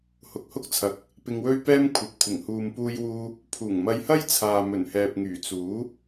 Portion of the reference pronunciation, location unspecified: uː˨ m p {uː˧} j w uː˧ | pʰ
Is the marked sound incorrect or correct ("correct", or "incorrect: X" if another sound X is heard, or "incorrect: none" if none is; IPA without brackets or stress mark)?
correct